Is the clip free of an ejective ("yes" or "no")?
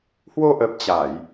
yes